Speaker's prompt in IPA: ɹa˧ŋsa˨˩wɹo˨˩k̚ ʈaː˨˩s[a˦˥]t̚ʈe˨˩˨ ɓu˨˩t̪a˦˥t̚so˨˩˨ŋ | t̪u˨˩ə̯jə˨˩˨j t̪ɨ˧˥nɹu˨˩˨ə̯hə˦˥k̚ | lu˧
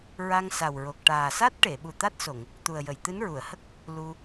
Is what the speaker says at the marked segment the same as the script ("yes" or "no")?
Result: yes